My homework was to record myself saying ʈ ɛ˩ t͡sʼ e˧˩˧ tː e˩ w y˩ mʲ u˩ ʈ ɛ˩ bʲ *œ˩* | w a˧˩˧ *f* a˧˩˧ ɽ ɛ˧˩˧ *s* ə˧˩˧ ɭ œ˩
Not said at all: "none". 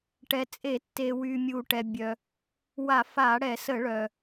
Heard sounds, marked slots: œ˩, f, s

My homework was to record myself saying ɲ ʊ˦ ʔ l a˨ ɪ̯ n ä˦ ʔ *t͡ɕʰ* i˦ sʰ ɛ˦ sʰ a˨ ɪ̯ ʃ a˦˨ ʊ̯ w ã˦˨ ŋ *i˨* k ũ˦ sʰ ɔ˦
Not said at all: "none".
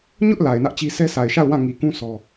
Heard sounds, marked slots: t͡ɕ, i˨

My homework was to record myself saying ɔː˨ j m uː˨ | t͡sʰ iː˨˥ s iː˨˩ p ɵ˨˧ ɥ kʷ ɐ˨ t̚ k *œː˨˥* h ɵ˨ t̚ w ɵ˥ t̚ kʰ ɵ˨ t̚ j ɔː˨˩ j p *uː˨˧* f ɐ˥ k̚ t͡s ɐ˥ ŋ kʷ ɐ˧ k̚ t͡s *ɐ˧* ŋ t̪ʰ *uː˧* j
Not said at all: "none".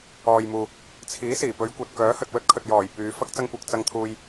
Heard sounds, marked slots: œː˨˥, yː˨˧, ɐ˧, uː˧

